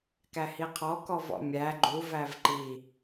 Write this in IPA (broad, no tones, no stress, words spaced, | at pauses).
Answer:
kæhiqʰɔ kɔvɔ̰mʲæ ɡ͡ǃuv ævǃi